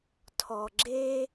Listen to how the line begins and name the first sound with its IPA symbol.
tʰ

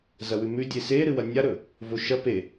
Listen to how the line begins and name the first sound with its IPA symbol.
z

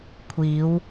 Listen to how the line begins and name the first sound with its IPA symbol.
kʷʰ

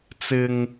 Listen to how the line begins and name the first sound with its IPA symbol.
t͡s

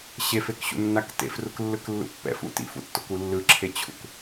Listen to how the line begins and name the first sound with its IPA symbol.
ɕ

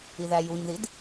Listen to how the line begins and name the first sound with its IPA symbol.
i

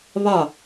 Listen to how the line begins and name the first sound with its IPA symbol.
β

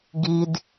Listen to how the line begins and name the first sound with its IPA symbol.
ɡ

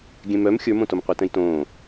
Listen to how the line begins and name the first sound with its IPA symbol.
ɡʲ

